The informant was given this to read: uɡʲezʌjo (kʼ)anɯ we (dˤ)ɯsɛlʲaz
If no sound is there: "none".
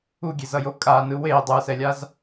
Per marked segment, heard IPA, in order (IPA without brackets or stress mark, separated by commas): kʼ, dˤ